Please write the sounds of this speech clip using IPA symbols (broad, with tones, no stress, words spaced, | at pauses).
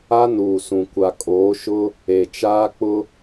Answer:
a˦nuː˨sũ˨kʷa˨ kʼoː˨˦ʃʊ˦ | e˨t͡ʃaː˦ k͡pʊ˦